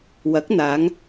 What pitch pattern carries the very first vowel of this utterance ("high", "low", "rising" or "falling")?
rising